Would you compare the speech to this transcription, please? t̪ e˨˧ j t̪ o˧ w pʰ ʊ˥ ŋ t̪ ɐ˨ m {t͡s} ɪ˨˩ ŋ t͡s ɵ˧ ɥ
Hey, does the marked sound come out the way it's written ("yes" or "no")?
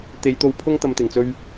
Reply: no